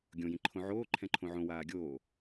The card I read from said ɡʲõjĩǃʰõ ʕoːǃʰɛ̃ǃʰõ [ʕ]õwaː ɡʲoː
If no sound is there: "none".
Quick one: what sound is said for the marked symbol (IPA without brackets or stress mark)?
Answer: ʕ